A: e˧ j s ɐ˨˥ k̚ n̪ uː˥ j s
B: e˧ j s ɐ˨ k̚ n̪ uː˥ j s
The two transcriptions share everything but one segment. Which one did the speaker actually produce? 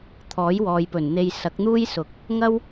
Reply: A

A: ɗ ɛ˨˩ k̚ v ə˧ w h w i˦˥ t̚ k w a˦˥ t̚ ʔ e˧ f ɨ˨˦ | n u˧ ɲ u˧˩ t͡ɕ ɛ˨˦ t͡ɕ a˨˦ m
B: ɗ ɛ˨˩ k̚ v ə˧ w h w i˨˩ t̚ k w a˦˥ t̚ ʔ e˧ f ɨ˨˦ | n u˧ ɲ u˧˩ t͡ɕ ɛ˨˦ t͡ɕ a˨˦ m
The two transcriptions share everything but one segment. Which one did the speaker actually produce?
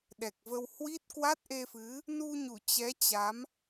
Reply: A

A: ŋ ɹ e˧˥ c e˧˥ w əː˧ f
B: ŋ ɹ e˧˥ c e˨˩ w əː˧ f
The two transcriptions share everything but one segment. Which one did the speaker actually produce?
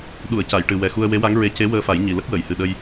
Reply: A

